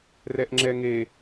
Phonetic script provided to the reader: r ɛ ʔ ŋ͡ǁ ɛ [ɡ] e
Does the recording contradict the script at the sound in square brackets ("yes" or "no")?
yes